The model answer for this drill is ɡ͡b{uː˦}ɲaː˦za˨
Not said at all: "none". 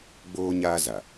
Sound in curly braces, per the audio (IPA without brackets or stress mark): oː˦